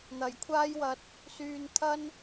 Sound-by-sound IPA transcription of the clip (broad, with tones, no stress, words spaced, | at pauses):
n̪ɐ˨˩jkʷʰaː˥jwɐ˧t̚ | syː˧nt̪ʰɐ˥n